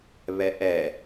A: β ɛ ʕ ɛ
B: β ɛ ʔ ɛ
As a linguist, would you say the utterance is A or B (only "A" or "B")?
B